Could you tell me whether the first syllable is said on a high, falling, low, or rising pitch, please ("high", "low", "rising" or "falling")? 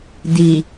low